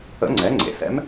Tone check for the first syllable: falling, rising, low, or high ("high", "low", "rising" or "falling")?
rising